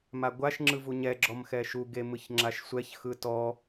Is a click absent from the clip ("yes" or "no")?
no